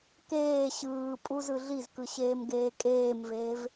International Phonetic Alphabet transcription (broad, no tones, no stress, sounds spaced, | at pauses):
k eː ɕ ɯː pʼ u z ɯ ɮ i z k ɯ ɕ eː m ɡ eː kʼ eː m v eː v